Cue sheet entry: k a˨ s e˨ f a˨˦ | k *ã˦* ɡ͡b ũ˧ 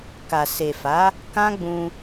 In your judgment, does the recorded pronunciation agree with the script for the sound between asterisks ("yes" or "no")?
yes